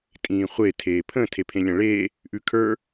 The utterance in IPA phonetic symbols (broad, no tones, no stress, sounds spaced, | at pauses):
tʼ ĩː χʷ e tʰ eː pʰ ə̃ tʰ e pʰ ẽ lʲ ã ɭ eː | ʔ ʉ kʰ ə˞